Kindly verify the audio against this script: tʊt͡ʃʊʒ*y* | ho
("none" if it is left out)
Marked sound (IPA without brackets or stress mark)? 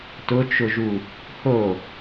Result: u